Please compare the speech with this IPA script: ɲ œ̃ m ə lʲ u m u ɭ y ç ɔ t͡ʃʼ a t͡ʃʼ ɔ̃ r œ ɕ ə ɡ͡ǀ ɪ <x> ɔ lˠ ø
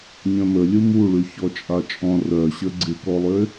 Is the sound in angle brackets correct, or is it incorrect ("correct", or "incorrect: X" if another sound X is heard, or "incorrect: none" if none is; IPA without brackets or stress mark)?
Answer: incorrect: k